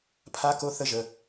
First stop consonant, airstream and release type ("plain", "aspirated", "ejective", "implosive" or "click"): aspirated